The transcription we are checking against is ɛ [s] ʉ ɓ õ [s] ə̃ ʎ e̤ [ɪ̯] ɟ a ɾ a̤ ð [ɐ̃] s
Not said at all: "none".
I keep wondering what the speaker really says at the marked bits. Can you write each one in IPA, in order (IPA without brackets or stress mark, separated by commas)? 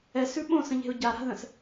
s, s, ʊ̯, ə̃